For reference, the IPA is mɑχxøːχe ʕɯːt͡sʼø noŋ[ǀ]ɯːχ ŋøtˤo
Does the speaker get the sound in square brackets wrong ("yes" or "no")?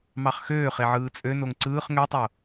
no